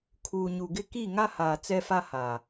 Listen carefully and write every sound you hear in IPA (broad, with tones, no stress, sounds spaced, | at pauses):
kʰ uː˨ ɲ u˨ ɡ ɪ˦ k i˦˨ ŋ a˦ h aː˨ t͡s ɛ˦ f a˦ h aː˨